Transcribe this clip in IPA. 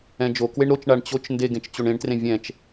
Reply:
ɛ̃d͡ʒo kweɳɾot͡ʃ ɳaɳt͡ɕot͡ʃ ndeɡẽt͡ʃt͡ɕoɳẽɳ trẽvʲɛ̃t͡ʃ

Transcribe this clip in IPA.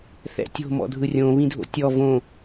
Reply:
θɛ̰tʲo̤ mɔ̰dʱɯrʲõ βĩdʱo̰tʲɔ võ

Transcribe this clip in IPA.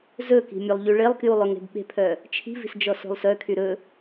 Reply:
zɵki̤ mʲolˠʎyɭelˠkjulˠ ɵŋe̤bɓe̤pʰœ | t͡ʃʰi̤vi̤s d͡ʒɔso̤lˠsœkʰy ɾɵ

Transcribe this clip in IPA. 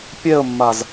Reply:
pʲɛə̯mːaz

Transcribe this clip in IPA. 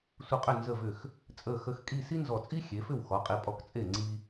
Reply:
sʷə˧qʼʏ˥˩ nzə˧˩vʏ˧˩x | t͡sʼə˧˩ xə˧xkʼi˥˧s i˥nzɔ˧˩t͡sʼi˥ xʲe˩˧fʏ˥˩wxɔ˩˧qʼi˩˧ pʼɔ˧kt͡sʼe˥˩ ŋ͡ǀi˧

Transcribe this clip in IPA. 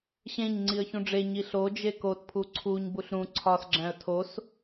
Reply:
ɕẽɲ ŋ͡ǀiə̯çũɖ͡ʐe ɲiɬo d͡ʒekotpʰu ǀʰuɲ buɬɾũ ǀʰɒsɡ͡ǁæ̃ə̯ tʰos

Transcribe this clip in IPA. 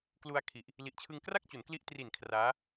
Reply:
klu˧a̯kʰi˨˩ʔ | li˨˩ʔt͡ɕʰɯ˧ŋkra˥˩k̚t͡ɕu˩˦n kli˦˥ʔtri˨˩n kʰraː˦˥

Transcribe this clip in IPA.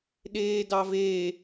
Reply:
ɗeːdɑveː

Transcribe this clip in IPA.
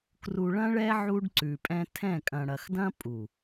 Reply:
kru˨ɭɐ̃˦ɭɛ˦ ʕu˦ɖǀʉ˨pʼɛ̃˦ tʰɛ̃˦˨kʼɐ̃˨ɽɐ˨x dɐ̃˦pʼu˨

